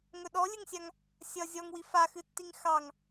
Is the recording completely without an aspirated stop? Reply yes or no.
yes